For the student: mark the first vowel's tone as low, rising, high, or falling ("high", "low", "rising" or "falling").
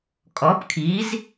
rising